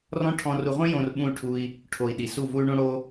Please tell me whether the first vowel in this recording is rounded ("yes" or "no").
yes